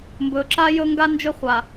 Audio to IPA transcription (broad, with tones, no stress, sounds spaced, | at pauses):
m b ɵ˨ ǁ a˦ j ɵ˦ ŋ ɡ a˦ n d͡ʒ ʏ˦ χʷ a˨